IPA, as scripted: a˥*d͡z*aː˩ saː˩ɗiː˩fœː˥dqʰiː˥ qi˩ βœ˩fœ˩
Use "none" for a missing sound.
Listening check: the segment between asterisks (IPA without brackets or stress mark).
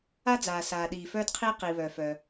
d͡z